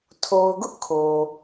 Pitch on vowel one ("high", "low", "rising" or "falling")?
low